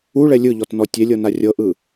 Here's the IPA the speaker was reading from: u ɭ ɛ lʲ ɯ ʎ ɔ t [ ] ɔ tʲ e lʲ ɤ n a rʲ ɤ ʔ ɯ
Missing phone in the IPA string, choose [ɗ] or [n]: n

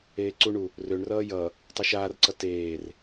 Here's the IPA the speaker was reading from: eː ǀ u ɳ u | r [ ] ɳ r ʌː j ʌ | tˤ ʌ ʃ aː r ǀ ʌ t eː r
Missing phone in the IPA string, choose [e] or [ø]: ø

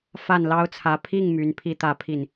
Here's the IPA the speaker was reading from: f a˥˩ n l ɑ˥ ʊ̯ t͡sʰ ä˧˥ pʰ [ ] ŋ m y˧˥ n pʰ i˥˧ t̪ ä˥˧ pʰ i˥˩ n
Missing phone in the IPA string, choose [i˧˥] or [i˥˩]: i˥˩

